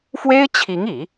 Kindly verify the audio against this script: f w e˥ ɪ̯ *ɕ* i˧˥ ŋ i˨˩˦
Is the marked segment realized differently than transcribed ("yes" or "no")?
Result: yes